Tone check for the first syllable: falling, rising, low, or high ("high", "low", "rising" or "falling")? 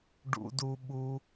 low